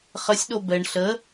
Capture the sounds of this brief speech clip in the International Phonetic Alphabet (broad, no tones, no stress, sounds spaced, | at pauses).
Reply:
χ ə sʲ ɗ o b ɛ ɳ ɬ ə